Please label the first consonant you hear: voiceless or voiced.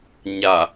voiced